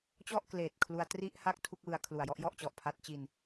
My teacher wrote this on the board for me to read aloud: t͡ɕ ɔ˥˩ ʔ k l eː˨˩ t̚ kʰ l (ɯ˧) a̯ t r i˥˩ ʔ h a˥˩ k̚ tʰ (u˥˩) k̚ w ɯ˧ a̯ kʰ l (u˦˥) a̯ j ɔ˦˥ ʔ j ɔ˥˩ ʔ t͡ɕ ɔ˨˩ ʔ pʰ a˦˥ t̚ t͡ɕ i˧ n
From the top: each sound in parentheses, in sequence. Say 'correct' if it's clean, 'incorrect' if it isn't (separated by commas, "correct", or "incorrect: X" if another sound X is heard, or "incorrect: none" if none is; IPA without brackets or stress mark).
incorrect: u˧, correct, incorrect: u˨˩